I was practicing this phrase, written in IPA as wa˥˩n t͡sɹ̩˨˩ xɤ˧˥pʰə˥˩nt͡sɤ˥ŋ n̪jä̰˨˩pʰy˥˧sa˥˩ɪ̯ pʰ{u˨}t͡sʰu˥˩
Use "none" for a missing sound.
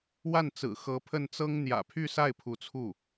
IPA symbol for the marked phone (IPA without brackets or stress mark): u˧˥